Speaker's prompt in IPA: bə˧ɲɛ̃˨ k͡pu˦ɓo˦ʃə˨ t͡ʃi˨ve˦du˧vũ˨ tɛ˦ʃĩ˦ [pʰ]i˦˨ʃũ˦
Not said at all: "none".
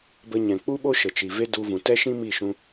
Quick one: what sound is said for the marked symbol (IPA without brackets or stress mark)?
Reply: m